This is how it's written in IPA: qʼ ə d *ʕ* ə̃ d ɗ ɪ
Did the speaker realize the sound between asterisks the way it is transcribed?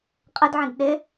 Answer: yes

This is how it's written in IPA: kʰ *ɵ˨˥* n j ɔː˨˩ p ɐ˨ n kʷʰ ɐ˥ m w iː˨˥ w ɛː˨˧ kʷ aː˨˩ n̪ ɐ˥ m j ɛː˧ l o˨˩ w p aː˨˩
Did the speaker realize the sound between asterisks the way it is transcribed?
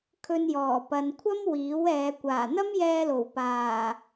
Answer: no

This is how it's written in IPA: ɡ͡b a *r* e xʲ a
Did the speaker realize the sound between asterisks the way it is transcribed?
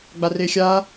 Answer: yes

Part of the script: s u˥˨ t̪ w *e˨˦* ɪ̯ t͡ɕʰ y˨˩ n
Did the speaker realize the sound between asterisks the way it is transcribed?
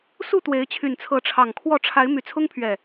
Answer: yes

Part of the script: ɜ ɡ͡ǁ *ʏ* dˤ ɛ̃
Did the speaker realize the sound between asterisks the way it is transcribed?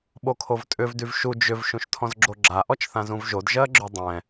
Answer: yes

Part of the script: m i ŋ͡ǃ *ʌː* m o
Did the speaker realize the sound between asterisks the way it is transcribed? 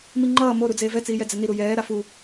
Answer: yes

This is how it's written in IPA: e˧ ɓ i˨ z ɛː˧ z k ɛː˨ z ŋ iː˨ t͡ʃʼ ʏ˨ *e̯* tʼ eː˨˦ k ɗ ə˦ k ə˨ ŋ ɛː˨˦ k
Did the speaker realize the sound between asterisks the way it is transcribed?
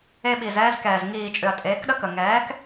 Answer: no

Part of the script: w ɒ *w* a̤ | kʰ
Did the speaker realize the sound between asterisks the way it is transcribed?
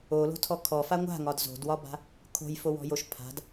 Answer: no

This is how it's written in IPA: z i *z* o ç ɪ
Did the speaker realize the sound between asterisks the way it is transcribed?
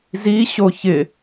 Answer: no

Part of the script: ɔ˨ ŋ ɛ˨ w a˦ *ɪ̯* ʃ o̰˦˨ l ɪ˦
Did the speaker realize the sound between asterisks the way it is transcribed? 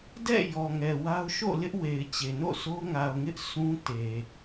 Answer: no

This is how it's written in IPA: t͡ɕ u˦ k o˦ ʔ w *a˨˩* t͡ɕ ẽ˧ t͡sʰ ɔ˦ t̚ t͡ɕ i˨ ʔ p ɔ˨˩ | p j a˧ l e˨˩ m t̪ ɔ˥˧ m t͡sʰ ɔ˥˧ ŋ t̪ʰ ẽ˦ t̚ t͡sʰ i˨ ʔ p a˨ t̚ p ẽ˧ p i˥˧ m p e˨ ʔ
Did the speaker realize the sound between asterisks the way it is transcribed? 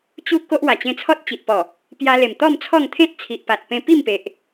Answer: yes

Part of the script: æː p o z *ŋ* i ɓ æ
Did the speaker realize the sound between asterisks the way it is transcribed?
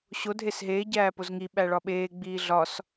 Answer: yes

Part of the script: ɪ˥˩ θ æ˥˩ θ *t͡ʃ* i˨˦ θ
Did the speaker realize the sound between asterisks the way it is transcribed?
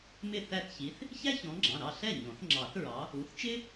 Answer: no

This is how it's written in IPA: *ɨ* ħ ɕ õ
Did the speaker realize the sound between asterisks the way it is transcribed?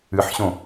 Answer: yes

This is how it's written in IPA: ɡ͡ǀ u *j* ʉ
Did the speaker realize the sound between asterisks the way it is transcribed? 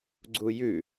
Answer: yes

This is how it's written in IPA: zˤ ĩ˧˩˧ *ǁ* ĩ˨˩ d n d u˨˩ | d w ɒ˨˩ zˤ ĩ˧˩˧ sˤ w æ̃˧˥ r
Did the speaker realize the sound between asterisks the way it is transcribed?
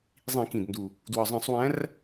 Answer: no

